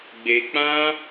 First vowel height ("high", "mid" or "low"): mid